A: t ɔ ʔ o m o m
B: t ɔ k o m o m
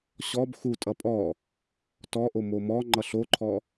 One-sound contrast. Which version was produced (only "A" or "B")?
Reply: A